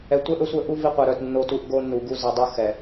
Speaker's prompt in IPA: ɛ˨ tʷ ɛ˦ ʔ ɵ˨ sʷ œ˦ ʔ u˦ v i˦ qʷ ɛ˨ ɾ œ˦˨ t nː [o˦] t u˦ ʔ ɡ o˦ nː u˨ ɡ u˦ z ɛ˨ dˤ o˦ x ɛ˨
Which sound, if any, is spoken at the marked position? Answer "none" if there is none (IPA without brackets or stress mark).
o˦